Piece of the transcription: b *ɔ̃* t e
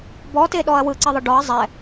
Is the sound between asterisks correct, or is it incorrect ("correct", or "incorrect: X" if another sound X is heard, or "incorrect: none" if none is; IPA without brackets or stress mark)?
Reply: incorrect: ɔ